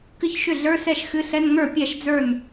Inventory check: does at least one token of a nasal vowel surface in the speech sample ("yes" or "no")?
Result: no